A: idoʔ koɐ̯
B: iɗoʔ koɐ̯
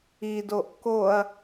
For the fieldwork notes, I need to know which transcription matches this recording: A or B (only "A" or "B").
A